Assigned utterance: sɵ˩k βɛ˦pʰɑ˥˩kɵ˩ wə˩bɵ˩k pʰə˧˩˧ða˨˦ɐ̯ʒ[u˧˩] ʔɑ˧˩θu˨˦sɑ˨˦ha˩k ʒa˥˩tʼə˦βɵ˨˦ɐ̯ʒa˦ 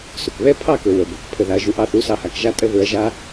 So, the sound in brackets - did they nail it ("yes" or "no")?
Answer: yes